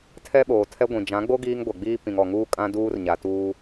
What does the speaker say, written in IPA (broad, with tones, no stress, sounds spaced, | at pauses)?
tʰ ɛ˦ ɓ oː˨ tʰ ɛ˦ ɡʷ ĩ˨ d͡ʒ ã˨˦ ɡ͡b o˦ ɡ iː˦ ŋ ɡʷ ɛ˨ ɡ͡b iː˦ p ĩ˨ ŋ ɔ˨ ŋ uː˦ kʼ ã˦ d uː˦ r ɲ a˨ t uː˦